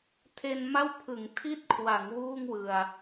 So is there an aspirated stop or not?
yes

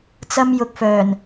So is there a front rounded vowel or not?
yes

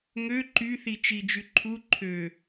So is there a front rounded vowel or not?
yes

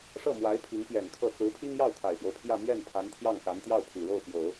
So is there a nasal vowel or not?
no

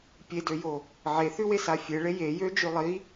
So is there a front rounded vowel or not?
yes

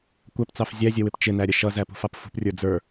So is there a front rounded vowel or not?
no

